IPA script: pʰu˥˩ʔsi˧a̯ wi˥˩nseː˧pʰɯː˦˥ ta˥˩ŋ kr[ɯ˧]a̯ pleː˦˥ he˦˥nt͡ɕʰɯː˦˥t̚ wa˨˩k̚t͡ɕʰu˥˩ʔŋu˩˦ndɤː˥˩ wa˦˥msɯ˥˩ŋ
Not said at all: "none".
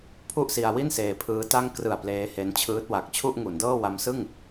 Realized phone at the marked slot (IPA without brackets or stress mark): ɯ˨˩